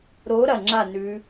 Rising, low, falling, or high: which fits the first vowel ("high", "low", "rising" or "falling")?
rising